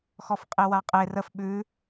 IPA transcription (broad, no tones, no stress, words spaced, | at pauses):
xɔfqʼewaqʼe rəf ɓʉ